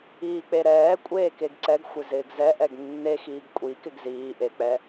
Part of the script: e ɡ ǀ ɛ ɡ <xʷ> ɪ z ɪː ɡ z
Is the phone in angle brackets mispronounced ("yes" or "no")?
no